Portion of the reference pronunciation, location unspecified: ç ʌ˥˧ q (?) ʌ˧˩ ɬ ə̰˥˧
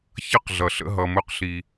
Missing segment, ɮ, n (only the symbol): ɮ